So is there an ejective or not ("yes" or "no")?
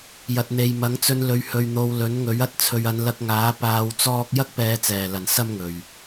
no